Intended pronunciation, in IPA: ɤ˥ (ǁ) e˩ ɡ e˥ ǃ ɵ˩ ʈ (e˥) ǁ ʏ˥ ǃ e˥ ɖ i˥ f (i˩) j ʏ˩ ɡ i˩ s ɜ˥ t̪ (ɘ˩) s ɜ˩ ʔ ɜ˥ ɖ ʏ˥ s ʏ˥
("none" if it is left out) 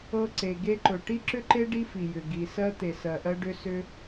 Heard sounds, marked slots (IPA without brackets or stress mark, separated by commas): ǀ, i˥, i˩, e˩